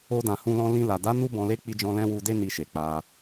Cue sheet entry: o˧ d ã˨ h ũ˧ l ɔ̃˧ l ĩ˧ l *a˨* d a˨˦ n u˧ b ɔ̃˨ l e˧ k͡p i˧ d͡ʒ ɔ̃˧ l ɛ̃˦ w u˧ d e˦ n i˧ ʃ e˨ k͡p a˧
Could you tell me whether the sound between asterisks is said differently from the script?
no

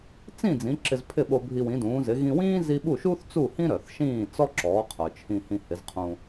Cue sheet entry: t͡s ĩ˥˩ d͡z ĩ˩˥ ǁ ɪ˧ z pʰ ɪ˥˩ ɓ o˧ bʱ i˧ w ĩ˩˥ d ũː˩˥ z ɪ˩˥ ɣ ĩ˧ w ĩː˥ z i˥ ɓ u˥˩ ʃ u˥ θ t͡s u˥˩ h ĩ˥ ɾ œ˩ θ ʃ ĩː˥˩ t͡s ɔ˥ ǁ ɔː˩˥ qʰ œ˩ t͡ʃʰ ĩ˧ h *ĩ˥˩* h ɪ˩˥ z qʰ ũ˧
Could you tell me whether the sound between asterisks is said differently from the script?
yes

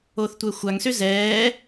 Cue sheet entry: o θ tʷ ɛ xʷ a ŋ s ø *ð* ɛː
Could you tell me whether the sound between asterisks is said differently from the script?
yes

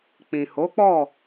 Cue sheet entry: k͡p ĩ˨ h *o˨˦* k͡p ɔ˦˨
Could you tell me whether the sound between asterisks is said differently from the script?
no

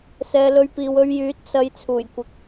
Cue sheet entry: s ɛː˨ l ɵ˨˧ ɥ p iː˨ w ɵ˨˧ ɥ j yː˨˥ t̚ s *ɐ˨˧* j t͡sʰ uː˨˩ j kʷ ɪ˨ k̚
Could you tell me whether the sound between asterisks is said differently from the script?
no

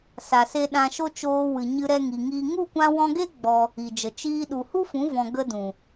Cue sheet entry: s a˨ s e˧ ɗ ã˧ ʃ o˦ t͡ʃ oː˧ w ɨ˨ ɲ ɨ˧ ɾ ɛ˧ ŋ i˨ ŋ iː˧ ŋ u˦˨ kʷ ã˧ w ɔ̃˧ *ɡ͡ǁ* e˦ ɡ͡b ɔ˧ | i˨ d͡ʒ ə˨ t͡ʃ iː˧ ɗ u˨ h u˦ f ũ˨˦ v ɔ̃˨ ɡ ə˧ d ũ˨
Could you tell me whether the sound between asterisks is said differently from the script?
yes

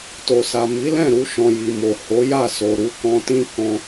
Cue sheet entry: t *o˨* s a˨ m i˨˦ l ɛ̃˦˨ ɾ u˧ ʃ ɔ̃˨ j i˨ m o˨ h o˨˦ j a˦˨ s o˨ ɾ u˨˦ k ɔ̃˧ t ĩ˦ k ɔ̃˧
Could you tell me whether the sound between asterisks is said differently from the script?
no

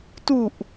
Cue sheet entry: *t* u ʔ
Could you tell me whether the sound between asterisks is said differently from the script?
no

